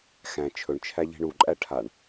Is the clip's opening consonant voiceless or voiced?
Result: voiceless